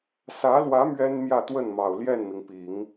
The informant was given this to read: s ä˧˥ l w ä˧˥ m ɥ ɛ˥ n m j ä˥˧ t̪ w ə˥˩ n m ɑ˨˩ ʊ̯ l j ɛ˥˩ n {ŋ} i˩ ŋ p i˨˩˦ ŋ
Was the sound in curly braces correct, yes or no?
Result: no